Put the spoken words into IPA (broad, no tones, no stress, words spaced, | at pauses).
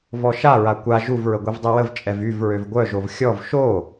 vɔʃaɹa kʷa ʒuvɹə ɡʷivdˤiwəvt͡ʃʼɛv yv ɹøvɡʷœʒov xʲɔv ʃo